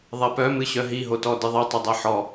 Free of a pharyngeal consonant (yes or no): no